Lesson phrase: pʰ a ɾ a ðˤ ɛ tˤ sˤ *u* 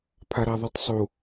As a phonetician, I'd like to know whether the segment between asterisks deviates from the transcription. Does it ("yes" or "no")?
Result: no